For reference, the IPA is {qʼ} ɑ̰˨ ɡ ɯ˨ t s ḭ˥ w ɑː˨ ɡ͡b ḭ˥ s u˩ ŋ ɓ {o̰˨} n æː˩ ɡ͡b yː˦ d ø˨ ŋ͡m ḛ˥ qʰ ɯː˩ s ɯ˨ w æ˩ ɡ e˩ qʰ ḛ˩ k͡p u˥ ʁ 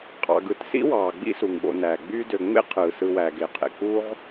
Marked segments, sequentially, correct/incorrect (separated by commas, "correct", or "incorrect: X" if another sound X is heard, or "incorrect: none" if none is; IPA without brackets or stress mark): correct, correct